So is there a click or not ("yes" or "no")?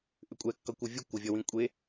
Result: no